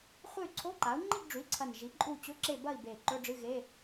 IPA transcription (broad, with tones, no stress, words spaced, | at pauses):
χʷɨ˦˨y̯ǀʰo˧˥˧ǃa˩˥u̯ ŋ͡ǃi˦˨ɡɖ͡ʐʉ˩˥i̯ǀʰɐ˨˩n ʒi˩˥ǃʼu˦˨t͡ɕɵ˧˥˧ǁe˦˨ bɐ˦˨i̯be˨˩ ǃɵ˧˥˧ɖ͡ʐɨ˧˥˧ɣe˧˥˧